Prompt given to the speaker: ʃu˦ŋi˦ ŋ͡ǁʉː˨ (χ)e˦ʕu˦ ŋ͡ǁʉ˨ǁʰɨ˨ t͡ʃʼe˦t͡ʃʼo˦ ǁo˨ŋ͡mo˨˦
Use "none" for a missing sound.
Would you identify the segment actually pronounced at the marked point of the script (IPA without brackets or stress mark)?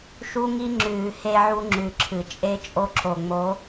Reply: h